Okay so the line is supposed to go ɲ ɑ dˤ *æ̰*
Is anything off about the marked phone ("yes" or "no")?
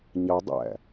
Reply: no